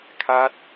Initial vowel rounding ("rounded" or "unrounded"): unrounded